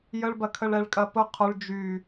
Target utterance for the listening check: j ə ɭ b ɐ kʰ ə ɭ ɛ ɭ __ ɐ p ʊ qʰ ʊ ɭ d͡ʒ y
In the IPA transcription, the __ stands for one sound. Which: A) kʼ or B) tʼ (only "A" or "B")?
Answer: A